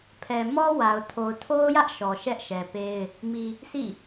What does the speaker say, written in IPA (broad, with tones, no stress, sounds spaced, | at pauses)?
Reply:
pʰ ɛ˨ m ɔ˦ w a˨ ʊ̯ tʰ o˨ ʊ̯ tʰ o˦ ʊ̯ j ä˦ ʔ ʃ ɔ˨ ʃ ɛ˦ ʔ ʃ ɛ˨ p e˦ ɪ̯ | m i˨ | s ḭ˦˨